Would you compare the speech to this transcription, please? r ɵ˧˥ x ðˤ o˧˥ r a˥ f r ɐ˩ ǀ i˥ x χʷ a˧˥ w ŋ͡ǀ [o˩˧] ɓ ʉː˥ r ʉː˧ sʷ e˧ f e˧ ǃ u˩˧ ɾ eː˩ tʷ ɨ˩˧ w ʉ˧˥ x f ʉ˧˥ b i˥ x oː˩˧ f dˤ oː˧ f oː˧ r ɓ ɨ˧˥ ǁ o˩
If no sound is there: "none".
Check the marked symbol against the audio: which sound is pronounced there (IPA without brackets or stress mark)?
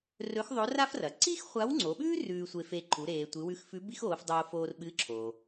o˩˧